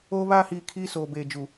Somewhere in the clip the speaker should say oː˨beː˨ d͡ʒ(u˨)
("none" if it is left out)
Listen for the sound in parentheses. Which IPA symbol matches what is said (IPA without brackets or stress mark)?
u˨